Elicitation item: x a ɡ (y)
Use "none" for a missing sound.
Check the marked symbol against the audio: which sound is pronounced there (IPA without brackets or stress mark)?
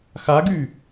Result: y